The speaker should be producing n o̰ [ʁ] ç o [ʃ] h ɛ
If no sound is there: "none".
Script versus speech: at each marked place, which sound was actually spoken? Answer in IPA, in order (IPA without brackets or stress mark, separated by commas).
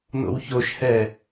w, ʃ